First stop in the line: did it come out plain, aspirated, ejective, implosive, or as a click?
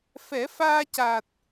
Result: plain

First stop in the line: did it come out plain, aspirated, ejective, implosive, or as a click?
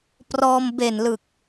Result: plain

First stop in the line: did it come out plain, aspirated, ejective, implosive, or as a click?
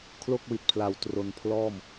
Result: aspirated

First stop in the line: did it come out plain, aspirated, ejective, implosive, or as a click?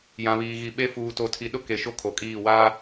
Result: implosive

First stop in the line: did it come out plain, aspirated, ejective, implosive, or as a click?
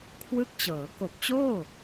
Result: aspirated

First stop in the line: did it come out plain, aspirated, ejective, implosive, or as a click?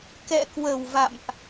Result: plain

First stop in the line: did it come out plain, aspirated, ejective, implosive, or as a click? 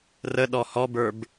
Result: implosive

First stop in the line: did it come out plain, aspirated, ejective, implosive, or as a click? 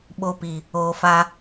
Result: implosive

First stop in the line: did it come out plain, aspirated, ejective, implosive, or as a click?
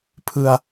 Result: aspirated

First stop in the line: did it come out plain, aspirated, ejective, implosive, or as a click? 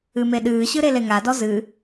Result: implosive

